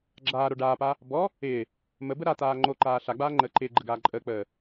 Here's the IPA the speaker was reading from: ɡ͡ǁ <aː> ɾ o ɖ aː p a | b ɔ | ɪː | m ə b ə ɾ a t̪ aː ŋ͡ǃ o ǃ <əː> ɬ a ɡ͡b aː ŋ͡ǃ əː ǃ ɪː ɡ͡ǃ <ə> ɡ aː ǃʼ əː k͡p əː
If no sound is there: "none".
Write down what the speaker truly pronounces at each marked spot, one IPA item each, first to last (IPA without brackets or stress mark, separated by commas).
aː, aː, ə